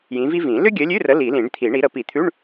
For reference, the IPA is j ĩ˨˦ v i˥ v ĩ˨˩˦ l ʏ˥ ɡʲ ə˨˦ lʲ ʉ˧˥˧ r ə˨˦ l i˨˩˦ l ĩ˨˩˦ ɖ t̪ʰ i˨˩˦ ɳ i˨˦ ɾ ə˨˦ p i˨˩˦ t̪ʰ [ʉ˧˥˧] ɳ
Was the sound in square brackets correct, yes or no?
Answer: yes